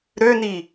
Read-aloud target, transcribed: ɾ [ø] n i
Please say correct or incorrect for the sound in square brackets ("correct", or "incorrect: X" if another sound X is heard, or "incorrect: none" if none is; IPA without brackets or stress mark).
correct